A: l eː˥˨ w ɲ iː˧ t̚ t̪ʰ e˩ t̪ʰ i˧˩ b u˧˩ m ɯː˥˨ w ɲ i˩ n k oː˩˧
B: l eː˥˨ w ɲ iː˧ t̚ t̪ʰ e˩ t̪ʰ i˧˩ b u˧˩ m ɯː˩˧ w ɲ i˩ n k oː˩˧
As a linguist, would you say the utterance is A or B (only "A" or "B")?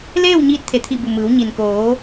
B